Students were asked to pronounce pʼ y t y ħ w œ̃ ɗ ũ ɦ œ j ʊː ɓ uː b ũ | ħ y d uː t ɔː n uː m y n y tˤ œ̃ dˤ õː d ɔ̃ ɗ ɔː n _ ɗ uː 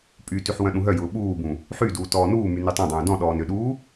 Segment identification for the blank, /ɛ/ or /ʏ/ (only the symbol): ʏ